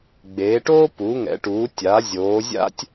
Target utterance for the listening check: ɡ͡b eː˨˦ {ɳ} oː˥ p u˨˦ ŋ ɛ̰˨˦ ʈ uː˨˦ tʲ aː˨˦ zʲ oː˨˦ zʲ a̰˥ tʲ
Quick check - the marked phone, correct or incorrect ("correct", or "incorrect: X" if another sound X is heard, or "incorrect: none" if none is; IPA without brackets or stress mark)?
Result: incorrect: ʈ